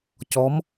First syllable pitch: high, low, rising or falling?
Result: rising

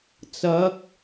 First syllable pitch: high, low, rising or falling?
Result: rising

